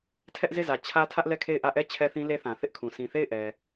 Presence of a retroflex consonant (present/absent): absent